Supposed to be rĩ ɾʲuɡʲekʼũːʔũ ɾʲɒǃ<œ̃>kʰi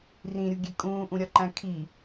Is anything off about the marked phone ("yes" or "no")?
yes